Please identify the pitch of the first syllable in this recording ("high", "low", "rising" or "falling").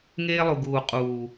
high